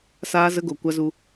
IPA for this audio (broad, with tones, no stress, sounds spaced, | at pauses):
s aː˦ z ə˦ ɡ o˧ kʷ a˧ z u˧